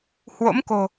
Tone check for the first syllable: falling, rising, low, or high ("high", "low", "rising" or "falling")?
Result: rising